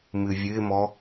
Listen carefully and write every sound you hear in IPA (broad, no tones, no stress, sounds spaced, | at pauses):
m ɨ vʲ ɨ ɪ̯ m ɔ